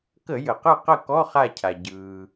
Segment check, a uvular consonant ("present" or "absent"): present